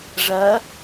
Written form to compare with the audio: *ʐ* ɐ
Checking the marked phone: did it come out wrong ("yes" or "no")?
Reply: no